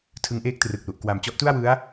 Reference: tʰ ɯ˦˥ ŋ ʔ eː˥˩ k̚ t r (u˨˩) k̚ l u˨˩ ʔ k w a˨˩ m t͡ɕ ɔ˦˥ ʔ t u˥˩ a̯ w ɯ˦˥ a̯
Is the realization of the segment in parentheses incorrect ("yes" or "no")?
yes